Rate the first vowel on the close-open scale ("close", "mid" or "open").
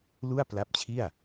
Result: close